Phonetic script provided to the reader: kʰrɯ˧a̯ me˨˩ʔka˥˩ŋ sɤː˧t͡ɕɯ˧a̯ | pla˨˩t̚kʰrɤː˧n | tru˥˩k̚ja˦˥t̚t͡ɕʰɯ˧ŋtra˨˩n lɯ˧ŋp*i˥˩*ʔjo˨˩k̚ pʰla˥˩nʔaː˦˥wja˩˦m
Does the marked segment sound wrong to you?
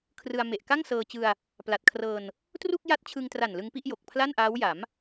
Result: no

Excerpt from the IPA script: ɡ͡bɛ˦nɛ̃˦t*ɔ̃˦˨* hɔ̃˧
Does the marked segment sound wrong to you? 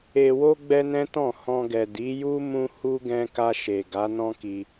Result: no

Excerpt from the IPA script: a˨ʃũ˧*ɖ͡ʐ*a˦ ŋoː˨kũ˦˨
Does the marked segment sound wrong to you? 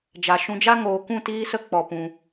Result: yes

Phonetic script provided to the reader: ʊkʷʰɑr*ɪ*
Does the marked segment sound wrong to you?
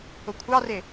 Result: no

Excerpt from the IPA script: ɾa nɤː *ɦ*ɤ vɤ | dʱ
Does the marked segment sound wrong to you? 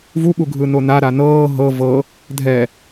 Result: no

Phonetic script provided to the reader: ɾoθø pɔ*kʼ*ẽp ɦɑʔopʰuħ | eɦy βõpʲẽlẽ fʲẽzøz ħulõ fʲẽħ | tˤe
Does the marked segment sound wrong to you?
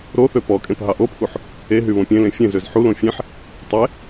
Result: no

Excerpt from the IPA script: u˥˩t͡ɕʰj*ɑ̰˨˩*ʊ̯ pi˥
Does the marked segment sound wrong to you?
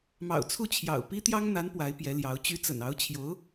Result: no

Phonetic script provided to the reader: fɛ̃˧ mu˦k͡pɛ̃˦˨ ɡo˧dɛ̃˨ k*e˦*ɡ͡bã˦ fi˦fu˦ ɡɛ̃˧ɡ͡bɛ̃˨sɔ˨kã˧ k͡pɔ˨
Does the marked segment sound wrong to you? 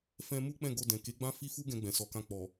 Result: yes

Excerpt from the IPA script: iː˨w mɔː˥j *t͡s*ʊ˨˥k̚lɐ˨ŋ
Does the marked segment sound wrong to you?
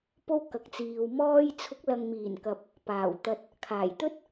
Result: yes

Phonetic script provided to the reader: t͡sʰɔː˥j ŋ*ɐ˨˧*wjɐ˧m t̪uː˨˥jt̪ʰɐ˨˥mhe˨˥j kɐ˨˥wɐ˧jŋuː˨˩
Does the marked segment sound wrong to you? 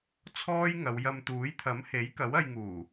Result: no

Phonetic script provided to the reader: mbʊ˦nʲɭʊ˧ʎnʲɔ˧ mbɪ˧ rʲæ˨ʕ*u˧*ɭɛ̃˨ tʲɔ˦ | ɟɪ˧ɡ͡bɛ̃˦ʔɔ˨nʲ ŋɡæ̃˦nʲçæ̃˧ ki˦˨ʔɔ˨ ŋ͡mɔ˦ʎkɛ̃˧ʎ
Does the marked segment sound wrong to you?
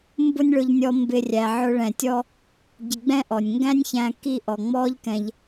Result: yes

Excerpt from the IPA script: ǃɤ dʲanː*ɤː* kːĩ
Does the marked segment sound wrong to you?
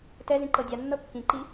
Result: yes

